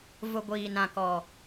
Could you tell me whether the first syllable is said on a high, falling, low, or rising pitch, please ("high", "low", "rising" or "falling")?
low